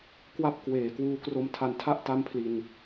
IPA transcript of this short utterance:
k w a˥˩ p̚ k w eː˨˩ k w uː˧ k r o˧ m tʰ a˧ n tʰ a˥˩ ʔ t a˥˩ m pʰ l i˧ n

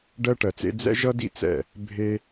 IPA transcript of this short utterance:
ɖ ɜ˥ ʈ ɜ˨˦ t͡s ḛ˥ d͡z ɛ̰˥ ʒ ʌ˥ d ḭ˥ t͡s ɛ̰˥˩ | bʱ e˥

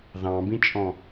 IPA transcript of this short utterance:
ð ɑ̃ b ĩ t͡ʃʼ ɔ̃

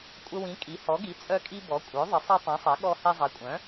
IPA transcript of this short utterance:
kʷʼ ə˧ w ĩ˩˥ kʼ i˩˥ h ɔ˩˥ ɡ i˩˥ t͡sʼ œ˧ kʼ i˧ b ɔ˩˥ kʷʼ œ˩˥ ðˤ ə˩˥ sˤ i˧ tˤ ĩ˩˥ sˤ ɛ˩˥ ɠ ɔ˧ h ɛ˧ zˤ ɛ˩˥ kʷʼ œ̃˩˥

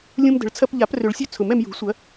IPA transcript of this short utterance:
lʲ ũ˧ m d ə̤˨˩˦ ɭ t͡sʰ ɐ˧ p ʎ a˨˩˦ p r ʏ˨˩˦ ɭ sʲ ø˧ t͡sʰ ʊ˨˩˦ m ɛ˧ m j ṳ˨˩˦ sʷ ɐ˨˩˦

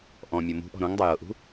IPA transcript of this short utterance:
ʔ ɔ̃ mʲ ɤ m ṳ ʔ ɔ̤ ɾ õ ŋ dˤ ɜ j ɤ ʔ ṳ

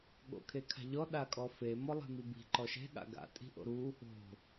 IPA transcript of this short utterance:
ɠ o̰ kʰ e kʰ a̤ ʎ ɔ ɗ a kʼ ɔ f e m ɔ lˠ e̤ m i b i̤ ǃ ɔ ʃ e̤ ɠ a̰ ɡ a̰ tʼ i̤ ʔ o̰ ɾ u | o̤

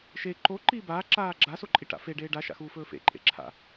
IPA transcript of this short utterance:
ʃ e ǃ o ǃ iː b aː ǁ aː ɡ͡ǁ a s o ǃʼ i ʈ a̰ f e ɖ eː ɖ a ʃ a̰ x uː f ɵː f ḛ ǃʼ ḛ ǁʰ a̰

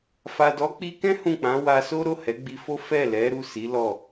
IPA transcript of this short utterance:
f a˨ d ɔ˨˦ k͡p i˧ k ɛ̃˦ h ũ˦˨ k͡p ã˨˦ w a˧ s o˦ ɾ o˦˨ h ɛ˨˦ ɡ͡b i˧ f o˦ f ɛ˦˨ l ɛ˨˦ ɾ u˦˨ s i˨˦ l ɔ˦˨

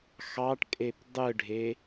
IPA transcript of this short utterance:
x ɑ ʈ kʼ e p dˤ ɯ ɖʱ e

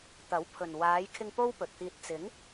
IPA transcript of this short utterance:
t̪ ɐ˨˥ w pʰ ɵ˨ n w aː˨˧ j kʰ ɪ˧ ŋ p o˥ w p ɵ˨ t̚ t̪ iː˧ t̚ t͡s ɪ˨˧ ŋ

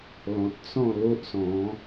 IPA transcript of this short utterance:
l ɔ̃˨ t̚ t͡s ɔ̃˥˧ l o˦ ʔ s ɔ̃˨˦

